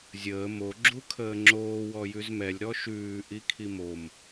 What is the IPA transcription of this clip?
zʲ əː m o ɡ͡ǁ u kʰ əː ŋ͡ǁ oː w ɔ j ʉ z m ɛ lʲ ɾ ɔ ʃ ʉː ʔ i kʰ i m o m

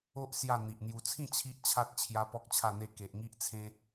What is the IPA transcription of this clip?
o˦ ʔ s j a˥˧ n̪ i˨ ʔ n̪ j u˧ t͡sʰ ĩ˥˧ t͡ɕʰ i˦ ʔ t͡ɕʰ a˦ t̚ t͡ɕʰ j a˦ p ɔ˦ k̚ t͡ɕʰ a˥˧ n̪ e˦ k e˨ ʔ ŋ i˦ ʔ t͡sʰ ẽ˦

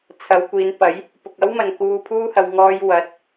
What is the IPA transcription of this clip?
t͡sʰ ɐ˨˧ w kʷ iː˨˧ n p ɐ˨˥ j | p ʊ˨ k̚ ɐ˥ w m ɐ˨ n k uː˧ pʰ uː˥ h ɐ˧ w ŋ ɔː˧ j w ɐ˨˥ t̚

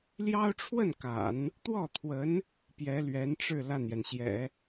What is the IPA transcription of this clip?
l j ɑ˥ ʊ̯ ʈ͡ʂʰ w ə˥˩ n k a̰˨˩˦ n | t̪ w ɔ˥˩ t̪ʰ w ə˧˥ n | p j ɛ˧˥ l ɥ ɛ˧˥ n ʈ͡ʂ ɻ̩˥˧ l a˥˩ n j ɛ˩ n ɕ j ɛ̰˨˩˦

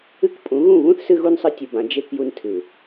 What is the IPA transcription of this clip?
ɨ˦ k pʼ ũ˨˦ ɣ ũ˦˨ β ũ˦ θ s ɨ˦ ɣ u˦ n sˤ ɨ˦ tʲ u˨ b ã˨˦ d͡ʒ e˦ k j u˨ n tʰ ɨ˨

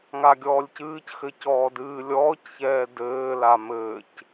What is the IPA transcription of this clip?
ŋ a ɡʲ ɔː lʲ c ɨː c x ɘ c ɔː d ɨː lʲ ɔː c ç ɛː d ɘː l a m ɘː c

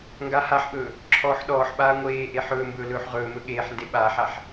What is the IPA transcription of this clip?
ŋ ɡ a h a ħ ɓ ɵː | ǁʰ ɔː ħ ɗ ɔː ħ ɓ aː ŋʷ eː ʔ e ħ ɵː m b ɵː l ɵː ħ ʁ ɵː m ɵ ɠ eː ħ n d e ɓ aː ħ a ħ

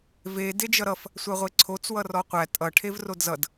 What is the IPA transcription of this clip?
v e d e d͡ʒ ʌ ɾ ʌ f | sʷ æ ʁʷ e ǀʰ o t͡s w ʌ r ɔ qʷ æ tʼ ʌ ʈʰ e v r o d z ʌ d

